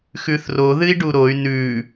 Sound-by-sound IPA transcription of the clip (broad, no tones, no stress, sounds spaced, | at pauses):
x ʉ θ r o ð ɨ i̯ ɖ u ɾ o y̯ n ʉ